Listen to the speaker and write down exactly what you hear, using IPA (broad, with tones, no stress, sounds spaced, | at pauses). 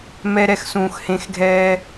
m ɛ˧ ɾ ɛ˧ x s ũː˨ x h ẽ˨˦ x ɡʱ ɛː˧